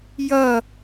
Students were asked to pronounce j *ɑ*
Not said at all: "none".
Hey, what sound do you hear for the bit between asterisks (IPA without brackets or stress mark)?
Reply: ʌ